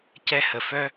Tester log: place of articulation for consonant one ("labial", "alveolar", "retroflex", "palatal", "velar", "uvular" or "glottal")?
palatal